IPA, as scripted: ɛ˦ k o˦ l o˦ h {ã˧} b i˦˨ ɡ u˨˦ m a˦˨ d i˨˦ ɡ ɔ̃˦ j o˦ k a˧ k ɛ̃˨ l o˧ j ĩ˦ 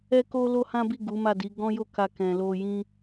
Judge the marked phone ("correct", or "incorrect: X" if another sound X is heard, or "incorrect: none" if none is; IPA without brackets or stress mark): incorrect: ã˦